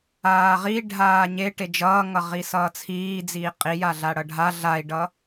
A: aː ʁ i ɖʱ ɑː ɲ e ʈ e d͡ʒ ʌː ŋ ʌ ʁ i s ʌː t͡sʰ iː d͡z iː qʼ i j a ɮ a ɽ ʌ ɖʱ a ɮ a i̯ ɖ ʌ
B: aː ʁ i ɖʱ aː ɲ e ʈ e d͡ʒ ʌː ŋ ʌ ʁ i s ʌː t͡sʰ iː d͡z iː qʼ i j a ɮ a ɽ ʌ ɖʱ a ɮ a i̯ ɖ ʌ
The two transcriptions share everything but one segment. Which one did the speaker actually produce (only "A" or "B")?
B